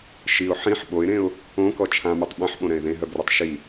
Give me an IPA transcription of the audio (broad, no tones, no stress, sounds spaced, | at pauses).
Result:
ʃ i ʊ̯ ħ ĩ ħ ɓ o ɪ̯ ɾ ẽ ʊ̯ | õ k ɔ t͡ʃʰ ã m u tˤ ɓ ɛ̃ ħ ɓ õ ɾ ɛ̃ ɪ̯ ð ẽ ɦ œ b r o tˤ ʃ i